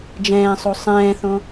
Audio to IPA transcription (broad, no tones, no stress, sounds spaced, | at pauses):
d͡ʒ ɛ̃ː sˤ o sˤ ɛ̃ː θ õ